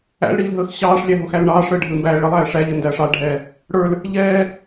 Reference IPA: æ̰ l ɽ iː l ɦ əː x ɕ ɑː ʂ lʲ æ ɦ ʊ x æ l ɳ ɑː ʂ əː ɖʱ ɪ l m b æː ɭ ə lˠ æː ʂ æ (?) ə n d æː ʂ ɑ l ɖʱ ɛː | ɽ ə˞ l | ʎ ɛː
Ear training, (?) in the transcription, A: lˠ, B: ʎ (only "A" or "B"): B